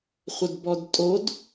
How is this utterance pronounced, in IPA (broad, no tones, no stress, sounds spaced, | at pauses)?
χʷ ə d b ɔ d tʼ o d